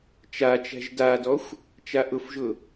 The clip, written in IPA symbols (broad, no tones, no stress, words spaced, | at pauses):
t͡ʃat͡ʃæ̤ʒ dadɔxʷ | t͡ʃaʔʊfʒʊ